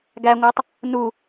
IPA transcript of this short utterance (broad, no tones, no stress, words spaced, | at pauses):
ɡæŋʷatˤ | nu